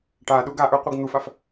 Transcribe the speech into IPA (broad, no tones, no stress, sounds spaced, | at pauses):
ʈ a ɗ u ɡ a ʔ ə˞ qʷ ɯ ɡ n̪ u f a f